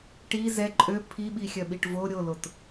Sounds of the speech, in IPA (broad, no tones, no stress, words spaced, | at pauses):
ʈi zɛ ǃʼø pʰiɓixʲœɓiʈ vo ɾʲolot